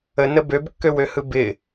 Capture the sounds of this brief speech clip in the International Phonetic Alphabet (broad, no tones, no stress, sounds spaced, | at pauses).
ə n ə b ø b kː ø w ø h ɯ b ɪ